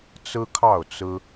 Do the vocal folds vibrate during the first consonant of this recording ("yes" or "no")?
no